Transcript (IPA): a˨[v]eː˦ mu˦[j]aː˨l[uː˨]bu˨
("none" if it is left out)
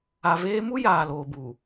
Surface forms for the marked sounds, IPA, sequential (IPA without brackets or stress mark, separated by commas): v, j, oː˨